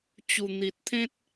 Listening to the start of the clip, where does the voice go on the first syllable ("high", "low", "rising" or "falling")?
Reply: low